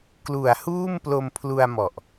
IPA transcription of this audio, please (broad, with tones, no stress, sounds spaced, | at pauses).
k l u˨˩ a̯ h uː˥˩ m p l o˧ m pʰ l u˧ a̯ m ɔ˨˩ ʔ